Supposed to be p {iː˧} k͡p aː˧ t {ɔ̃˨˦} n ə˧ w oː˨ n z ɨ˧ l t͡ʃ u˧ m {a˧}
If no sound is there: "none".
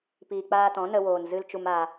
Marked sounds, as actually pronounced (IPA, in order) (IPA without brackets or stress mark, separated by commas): iː˨, ɔ̃˨˦, a˧